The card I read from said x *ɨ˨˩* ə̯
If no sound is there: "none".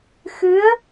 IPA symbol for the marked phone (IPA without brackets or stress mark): ɨ˧˥